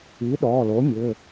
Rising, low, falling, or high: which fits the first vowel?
rising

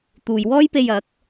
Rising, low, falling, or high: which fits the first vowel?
low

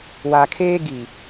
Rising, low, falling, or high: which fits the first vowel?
low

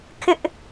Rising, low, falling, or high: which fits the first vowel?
high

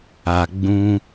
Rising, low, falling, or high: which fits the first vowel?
low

